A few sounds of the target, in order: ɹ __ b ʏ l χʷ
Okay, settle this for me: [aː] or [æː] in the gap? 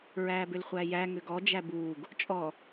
æː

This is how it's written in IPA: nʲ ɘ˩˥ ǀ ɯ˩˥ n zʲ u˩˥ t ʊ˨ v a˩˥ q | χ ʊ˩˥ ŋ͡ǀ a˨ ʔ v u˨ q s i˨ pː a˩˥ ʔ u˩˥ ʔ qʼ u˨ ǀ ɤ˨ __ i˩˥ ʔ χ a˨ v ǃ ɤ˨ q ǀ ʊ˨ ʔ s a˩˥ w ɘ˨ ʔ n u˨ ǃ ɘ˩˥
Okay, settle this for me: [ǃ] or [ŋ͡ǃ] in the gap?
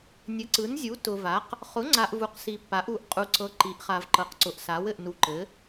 ǃ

